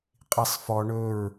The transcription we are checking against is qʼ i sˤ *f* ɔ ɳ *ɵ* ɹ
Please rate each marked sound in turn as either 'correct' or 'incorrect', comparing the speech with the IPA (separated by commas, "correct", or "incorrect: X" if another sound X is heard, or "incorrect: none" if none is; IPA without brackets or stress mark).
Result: correct, correct